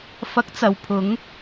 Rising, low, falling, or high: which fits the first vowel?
rising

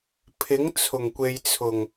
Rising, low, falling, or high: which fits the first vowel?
rising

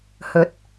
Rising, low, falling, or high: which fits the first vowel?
rising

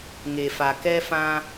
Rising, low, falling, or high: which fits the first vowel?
low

